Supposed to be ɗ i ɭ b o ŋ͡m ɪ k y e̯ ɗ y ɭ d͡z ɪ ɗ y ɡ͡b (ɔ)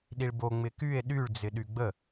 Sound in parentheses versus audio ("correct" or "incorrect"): incorrect